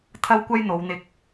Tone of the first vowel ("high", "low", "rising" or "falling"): high